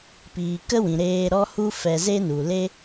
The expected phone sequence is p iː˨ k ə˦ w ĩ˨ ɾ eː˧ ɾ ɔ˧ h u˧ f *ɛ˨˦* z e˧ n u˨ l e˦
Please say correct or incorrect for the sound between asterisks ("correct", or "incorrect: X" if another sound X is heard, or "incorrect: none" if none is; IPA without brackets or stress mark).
incorrect: ɛ˨